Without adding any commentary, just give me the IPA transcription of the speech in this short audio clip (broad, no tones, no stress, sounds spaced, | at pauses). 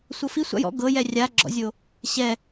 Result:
sʷ ɤ f i sʷ a̰ j ɔ̰ ɡ ɤ j ɛ rʲ a ɡ͡ǁ ɔ̰ zʲ o | ɕ ɛ